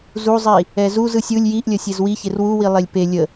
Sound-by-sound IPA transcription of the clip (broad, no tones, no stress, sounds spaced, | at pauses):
z u zˤ i | ɛ z u z ɯ sʲ ɯ lʲ j i ʔ lʲ ə sʲ e z w i ç e r w u w i lˠ e lʲ p e lʲ ə